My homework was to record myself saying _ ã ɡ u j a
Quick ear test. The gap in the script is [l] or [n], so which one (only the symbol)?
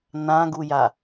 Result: n